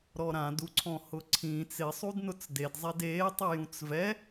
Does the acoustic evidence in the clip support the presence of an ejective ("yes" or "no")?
no